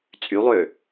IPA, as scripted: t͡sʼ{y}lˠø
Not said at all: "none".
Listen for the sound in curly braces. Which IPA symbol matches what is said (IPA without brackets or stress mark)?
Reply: y